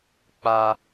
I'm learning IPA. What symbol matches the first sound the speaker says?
k͡p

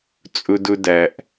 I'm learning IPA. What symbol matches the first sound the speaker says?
t͡sʼ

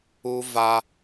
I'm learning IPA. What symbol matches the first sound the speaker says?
u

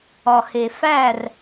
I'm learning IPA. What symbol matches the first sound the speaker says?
ɒ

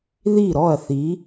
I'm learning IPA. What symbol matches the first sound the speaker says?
ð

